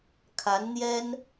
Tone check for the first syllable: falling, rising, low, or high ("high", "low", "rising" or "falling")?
rising